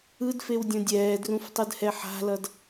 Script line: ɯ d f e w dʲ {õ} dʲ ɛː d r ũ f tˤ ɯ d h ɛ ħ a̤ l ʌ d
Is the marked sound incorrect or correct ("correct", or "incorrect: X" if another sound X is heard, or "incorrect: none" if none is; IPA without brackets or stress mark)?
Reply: correct